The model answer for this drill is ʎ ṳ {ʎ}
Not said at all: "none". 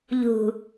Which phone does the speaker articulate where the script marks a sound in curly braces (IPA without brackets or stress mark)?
none